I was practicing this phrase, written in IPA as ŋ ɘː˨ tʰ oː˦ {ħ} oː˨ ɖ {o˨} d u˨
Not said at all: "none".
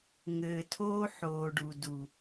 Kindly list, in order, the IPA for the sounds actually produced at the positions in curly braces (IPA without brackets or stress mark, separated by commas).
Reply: ħ, u˨